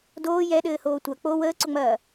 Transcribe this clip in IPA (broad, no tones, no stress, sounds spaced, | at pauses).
d oː j ɛ ɗ ɘː h oː tʷ ɐ k͡p o w əː ǀ ʊ ŋ͡m ɐː